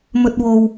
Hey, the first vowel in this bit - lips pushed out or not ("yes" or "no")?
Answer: yes